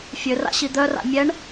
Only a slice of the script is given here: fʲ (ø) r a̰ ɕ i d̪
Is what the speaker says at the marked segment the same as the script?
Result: yes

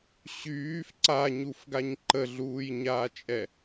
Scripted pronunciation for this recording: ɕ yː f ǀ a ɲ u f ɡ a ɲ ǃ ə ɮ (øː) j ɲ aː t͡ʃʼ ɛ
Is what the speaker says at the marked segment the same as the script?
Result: no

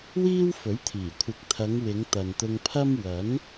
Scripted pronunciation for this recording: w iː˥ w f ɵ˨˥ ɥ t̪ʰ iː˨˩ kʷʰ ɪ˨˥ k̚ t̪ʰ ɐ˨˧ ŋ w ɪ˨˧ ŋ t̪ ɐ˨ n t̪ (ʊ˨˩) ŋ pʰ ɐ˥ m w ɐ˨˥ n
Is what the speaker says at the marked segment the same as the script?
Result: no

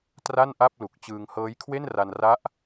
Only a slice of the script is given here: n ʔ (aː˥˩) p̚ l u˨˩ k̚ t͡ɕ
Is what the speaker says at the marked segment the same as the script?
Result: no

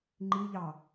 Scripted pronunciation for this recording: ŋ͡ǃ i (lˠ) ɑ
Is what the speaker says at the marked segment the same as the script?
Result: no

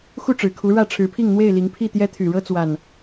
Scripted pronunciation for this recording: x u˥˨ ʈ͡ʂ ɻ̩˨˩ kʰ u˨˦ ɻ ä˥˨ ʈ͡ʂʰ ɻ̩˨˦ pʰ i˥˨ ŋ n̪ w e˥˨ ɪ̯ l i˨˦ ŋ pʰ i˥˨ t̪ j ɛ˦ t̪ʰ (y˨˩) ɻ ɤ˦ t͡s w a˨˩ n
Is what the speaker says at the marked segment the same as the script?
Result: yes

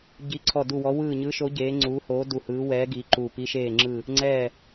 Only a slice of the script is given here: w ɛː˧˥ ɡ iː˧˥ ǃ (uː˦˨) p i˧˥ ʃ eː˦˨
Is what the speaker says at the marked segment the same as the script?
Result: yes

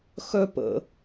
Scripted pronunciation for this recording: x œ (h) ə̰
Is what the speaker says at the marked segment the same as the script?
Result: no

